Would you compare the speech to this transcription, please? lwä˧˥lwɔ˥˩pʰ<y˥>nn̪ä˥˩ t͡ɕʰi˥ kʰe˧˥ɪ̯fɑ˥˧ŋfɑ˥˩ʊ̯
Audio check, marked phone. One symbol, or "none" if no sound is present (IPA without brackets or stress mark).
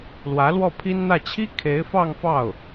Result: i˥